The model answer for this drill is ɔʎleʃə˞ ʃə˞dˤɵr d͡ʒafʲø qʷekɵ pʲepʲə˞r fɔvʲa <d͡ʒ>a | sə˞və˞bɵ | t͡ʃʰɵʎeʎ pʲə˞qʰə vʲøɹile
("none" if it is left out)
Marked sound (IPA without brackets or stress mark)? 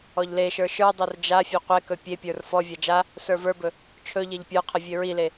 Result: d͡ʒ